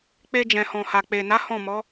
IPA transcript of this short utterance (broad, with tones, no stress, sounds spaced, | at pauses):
k͡p e˧ d͡ʒ ɛ̃˨ h ɔ̃˨ h a˨ k͡p e˨ n a˨˦ h ɔ̃˦˨ m ɔ˨˦